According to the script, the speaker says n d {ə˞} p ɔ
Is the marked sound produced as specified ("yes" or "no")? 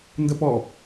no